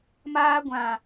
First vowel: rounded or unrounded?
unrounded